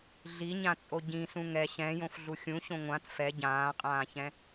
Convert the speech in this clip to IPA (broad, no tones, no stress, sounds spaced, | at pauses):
ɮ i ɲ ã t͡sʼ o ɟ ĩ s ũ ŋ ɛ ɕ ɛ̃ j õ f ɮ u xʲ ũ ɕ õ ŋʷ ã t f ɛ ɟ ãː qʼ ãː ç ɛ̃